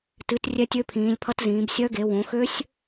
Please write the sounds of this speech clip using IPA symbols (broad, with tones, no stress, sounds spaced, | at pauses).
t ɨ˨˦ t rʲ ɛ˦˥ tʲ ø˦˥ pʰ ĩː˨˦ lʲ pʰ ʌ˦˥ t z ĩː˨˦ b sʲ œ˦˥ ɡ e˨˦ w õ˨˦ x ø˦˥ sʲ